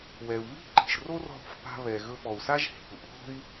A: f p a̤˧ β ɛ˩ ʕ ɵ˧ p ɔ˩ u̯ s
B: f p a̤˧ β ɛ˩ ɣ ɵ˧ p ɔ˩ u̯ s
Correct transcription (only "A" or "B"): B